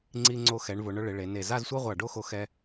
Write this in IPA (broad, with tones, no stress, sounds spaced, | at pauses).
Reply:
ŋ͡ǀ i˧ ŋ͡ǀ o˧ x ɛ˩˧ ɳ v ʊ˩˧ ɳ ʊ˧ ɭ ɪ˩˧ ɭ e˩˧ n e˧˩ z a˥˧ z sʷ a˥ ʁʷ a˧˩ ɖ o˥˧ x o˧ x ɛ˧